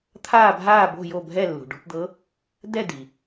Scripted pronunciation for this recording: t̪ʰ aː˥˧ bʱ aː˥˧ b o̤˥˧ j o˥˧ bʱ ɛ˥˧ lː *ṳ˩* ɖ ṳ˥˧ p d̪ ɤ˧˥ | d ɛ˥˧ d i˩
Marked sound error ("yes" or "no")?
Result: no